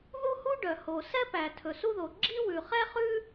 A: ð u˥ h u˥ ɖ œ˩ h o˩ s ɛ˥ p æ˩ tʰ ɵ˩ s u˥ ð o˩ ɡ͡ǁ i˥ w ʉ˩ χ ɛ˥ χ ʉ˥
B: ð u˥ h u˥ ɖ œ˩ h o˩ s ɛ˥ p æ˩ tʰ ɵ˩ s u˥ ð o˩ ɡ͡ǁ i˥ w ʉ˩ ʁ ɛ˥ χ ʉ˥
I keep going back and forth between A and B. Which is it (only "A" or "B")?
A